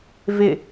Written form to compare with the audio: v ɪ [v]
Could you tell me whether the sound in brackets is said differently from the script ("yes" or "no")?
yes